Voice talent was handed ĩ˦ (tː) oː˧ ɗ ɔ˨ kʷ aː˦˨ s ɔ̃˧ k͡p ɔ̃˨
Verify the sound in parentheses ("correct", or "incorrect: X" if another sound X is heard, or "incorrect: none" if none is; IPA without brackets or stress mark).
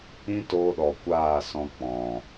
incorrect: t